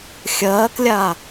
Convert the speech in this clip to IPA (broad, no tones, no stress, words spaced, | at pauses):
xʲɐːklʲa